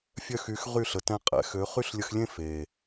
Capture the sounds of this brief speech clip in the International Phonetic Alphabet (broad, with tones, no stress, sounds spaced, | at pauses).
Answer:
fʲ œ˧ x y˨˦ x ʁ y˦˨ ɬ ə˨ t ɛ̃˧ qʼ ɛ̰˨ x ø˨˦ χ y˦ ɬ lʲ ə˧ x lʲ ẽ˦ f e˨